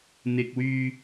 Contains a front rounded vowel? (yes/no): yes